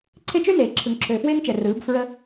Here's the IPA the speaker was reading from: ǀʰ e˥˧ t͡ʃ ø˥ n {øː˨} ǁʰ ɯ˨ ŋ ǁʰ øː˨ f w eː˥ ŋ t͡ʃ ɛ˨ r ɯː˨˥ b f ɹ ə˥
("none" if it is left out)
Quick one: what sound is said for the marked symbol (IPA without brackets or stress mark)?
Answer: eː˨